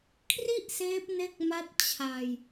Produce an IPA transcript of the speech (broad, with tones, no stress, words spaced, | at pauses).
kʰri˥˩ʔseː˦˥p̚ ne˦˥k̚ma˦˥t̚ t͡ɕʰa˧j